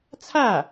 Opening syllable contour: falling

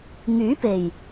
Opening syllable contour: rising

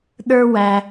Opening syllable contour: high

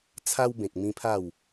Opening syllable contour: high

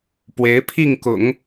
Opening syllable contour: rising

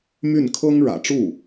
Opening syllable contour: falling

